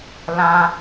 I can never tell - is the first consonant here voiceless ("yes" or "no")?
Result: no